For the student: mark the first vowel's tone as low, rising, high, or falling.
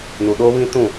low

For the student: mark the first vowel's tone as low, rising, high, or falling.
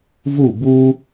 falling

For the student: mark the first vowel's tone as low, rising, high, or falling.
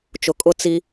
low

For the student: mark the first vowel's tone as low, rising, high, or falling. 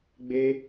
high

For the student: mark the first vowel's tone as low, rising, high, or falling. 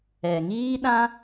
low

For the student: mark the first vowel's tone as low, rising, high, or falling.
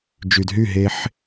low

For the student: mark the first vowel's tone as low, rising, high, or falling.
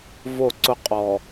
falling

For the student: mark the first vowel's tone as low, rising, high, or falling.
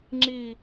low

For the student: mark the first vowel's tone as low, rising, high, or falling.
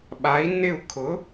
rising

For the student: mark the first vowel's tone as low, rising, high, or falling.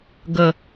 low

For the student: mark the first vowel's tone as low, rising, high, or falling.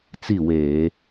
falling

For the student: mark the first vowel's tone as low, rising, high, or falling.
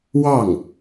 falling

